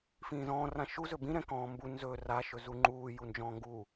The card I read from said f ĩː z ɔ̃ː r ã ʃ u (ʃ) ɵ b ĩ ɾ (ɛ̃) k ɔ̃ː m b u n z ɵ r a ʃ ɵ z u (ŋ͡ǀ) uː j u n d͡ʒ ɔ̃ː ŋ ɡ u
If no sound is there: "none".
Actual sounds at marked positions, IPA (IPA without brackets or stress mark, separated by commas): z, ɛ̃, ŋ͡ǃ